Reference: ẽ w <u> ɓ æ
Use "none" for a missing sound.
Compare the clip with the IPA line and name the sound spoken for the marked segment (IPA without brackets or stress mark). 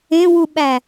u